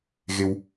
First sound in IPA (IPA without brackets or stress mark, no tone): ɣ